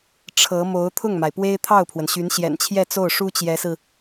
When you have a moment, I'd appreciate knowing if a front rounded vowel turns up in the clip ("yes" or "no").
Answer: yes